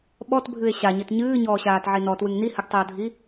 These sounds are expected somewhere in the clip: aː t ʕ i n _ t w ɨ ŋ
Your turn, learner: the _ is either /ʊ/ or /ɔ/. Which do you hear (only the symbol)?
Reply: ɔ